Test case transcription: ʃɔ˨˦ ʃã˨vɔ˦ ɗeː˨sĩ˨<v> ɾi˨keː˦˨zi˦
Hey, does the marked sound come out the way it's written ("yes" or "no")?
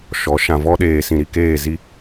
no